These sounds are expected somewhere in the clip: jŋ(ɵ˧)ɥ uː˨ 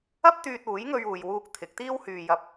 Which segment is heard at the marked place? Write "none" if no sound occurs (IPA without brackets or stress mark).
ɵ˧